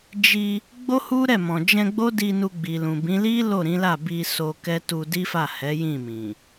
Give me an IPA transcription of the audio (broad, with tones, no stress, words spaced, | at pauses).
d͡ʒi˧ | ɡ͡bo˦hu˦ɾɛ˦˨ mɔ̃˨d͡ʒɛ̃˧ɡ͡bo˦di˧ nu˧ɡ͡bi˨lũ˨bĩ˨˦ li˦ lo˦˨ɾĩ˨˦la˦˨ bi˧so˧kɛ˦ tu˧di˦fa˦˨ hɛ˨˦jĩ˦˨mĩ˨